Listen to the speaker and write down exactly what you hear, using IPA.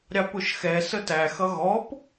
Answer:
ɾʲ ɑ p ʊ ʃ x ɛ s ə t æ x ʌ ɣ ɔ p

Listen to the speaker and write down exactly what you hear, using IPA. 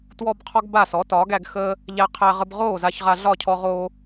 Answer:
t w ɔ˥ b qʰ ɔ˥ ɡ b a˥˩ s ɔ˩˥ t ɒː˩˥ ɡ æ˧ ɡ x əː˥ | ʎ æ˧ qʰ æ˧ ʁ ə˧ b ʁ oː˥˩ z a˧ ç ʁ a˧ ɮ ɒ˥˩ cʰ ɔ˧ ʁ oː˧

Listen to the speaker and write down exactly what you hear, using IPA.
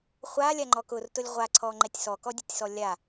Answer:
χʷ a lʲ a ŋ͡ǃ ɔ k ʊ r t ʊ lʲ ʁʷ a ǀʰ ɔ ŋ͡ǃ ɛ tʲ s ɔ k ɔ dʲ ʊ tʲ s ɔ lʲ a

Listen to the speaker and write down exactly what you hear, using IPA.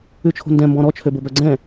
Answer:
ʉ t͡ʃʰ o̤ n d ɛ̃ m b ɔ̃ ɾ ɔ t͡ʃʰ ø b o b œ ɡ͡ǀ ɛ̃

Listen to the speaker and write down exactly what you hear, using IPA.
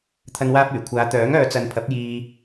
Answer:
t̪ʰ ɐ˧ n w aː˧ p̚ yː˨˩ kʷʰ aː˨˧ t̪ œː˨˥ ŋ œː˨˧ t͡s ɐ˨˧ n pʰ ɐ˨˥ p̚ j iː˧

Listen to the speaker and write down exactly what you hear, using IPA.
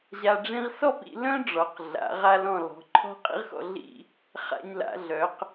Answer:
ʑ a˧ ɖ͡ʐ ĩ˥ ʁ s ɔ˥˧ p ḭ˧ l œ̃˥ ɖ͡ʐ ɔ˩˧ q ɮ a̰˩˧ ʁ a˧ l ɔ̃˧˩ l ɔ̤˩˧ ǃʰ ɔ̤˥ qʼ ḭ˥ ʁ x ɔ̰˧ ɮ ḭ˥˧ | χ a̰˧ ɲ l a̰˩˧ ɮ œ˩˧ q

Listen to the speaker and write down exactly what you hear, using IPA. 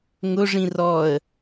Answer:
ŋ ʊ ʐ ĩ r ɔ ə̯

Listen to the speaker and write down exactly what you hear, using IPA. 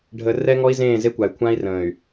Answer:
ɖʱ ə˨ r ɛ˦ ŋ ɔ˦ i̯ z ẽː˦˨ z e˦ kʷ a˨ y̯ kʷʰ ã˦ i̯ r ə̃ː˨ y̯

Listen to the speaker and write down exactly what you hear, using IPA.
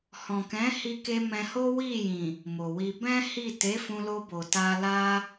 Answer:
h ɔ̃˨ k ɛ̃˨˦ h i˧ k e˧ m ɛ̃˧ h o˦ w i˦˨ j ĩ˨ | m o˨ w i˧ b ɛ̃˦ h i˦˨ t e˨˦ f ũ˧ l o˧ b o˨ t a˧ l a˧

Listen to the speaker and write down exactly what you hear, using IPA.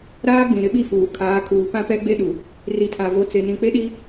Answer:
ɾ aː˦ ɡ͡b ĩ˨ ɾ ɪ˦ ɓ i˦ f uː˨ kʰ aː˨˦ kʰ uː˨ p ã˦ p ɛ˦ ɡ͡b e˦ ɗ u˨ | r i˨ tʰ a˨ v o˨ t͡s e˨ n ĩ˨ k͡p e˦ ɗ i˦

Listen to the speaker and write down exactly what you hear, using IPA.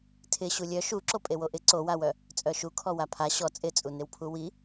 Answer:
tʰ ɪ ɕ u lʲ œ ʃ u ǁ o pʼ e w o ʔ ɪ ǀ o w a w œ | t͡sʼ œ ʃ u kʰ ɔ w a pʰ a ɕ ɔ t͡sʼ ɪ t͡sʼ u n ɪ w pʰ u w i

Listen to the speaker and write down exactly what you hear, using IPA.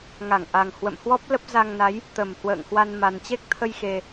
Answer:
ŋ a˧˩ ŋ ʔ a˨˩ ŋ h w ə̰˧˨ m h w ɔ˦˥ p̚ l ə˦˥ p̚ z a˧ ŋ n a˨˦ j | t̪ ə˧˩ m h w ə̰ː˧˨ ŋ h w a˧ n m a˨˩ n t͡ɕ e˦˥ k̚ t̪ʰ ə˧ j x e˨˩

